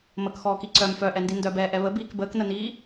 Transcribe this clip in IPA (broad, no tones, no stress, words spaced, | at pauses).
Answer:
məkxɔːki ǀœm fœʔɛndi ndœbɛːʔɛ βəbiːk bəːknəniː